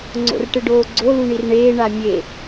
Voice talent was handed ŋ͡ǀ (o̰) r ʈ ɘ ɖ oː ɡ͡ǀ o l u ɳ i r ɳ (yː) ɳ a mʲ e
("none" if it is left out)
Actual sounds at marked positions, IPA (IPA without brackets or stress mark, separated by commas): o̰, eː